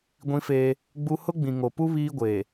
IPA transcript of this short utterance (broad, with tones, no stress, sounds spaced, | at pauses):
ɡʷ ĩ˦ f eː˦ | ɡ͡b u˦ h ʊ˦ ɡ͡b ĩ˨ ŋ o˨ p u˦ β iː˦ ɡʷ eː˨